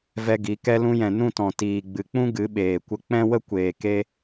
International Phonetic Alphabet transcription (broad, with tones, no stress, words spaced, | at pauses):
vɛ˧ɡi˨˦ kɛ˧lũ˧jɛ̃˨ nũ˦˨tɔ̃˨ tiː˨ɡ͡bɨ˨k͡pũ˦ ɡɨ˨˦ɓeː˨kʷə˧ k͡pɛ̃˦wə˦kʷeː˨ke˧